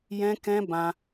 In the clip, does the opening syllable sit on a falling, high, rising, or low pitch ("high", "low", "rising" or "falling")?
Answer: high